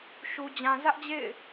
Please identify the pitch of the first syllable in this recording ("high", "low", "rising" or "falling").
low